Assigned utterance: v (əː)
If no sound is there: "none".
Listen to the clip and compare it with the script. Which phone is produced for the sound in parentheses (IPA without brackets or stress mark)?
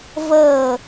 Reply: əː